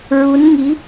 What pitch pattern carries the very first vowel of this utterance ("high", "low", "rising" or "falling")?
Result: rising